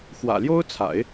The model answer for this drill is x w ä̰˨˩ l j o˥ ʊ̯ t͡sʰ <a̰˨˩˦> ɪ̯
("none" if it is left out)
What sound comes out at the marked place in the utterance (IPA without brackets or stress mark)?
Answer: a̰˨˩˦